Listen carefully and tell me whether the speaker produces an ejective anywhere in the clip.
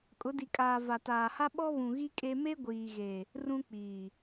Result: yes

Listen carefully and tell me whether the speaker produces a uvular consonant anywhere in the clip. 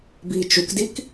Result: no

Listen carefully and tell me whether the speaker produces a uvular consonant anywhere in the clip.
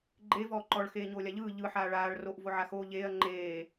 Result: no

